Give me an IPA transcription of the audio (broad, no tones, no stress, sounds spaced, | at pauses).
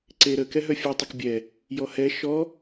ǀ e ɾ ə k ɛ ɦ œ fʲ œ tˤ ə k bʲ ɛ | j ɔ h ɛ ʃ ɔ